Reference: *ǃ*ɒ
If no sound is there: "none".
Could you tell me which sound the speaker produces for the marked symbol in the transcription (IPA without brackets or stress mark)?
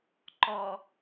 ǃ